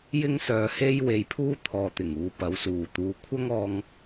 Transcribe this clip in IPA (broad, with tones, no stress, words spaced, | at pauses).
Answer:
jɪ˥ŋsœː˧he˥j we˧jpʰuː˥ t̪ʰɔː˨t̪ɪ˨˩ŋ uː˧pɐ˨˥wsuː˨t̪uː˧ kʷʰɐ˥ŋɔː˧ŋ